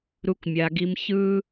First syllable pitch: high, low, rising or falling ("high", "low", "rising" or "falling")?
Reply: low